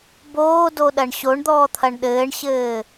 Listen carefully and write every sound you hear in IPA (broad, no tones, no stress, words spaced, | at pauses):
boːdoɗɐɳ ɕoɳd̪ɔːt̪ʰɐɳ ɗɘːɳɕɘː